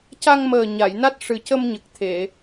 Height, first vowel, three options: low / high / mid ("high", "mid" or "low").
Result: low